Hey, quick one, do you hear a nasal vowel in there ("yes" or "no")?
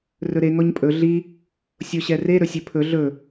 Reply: no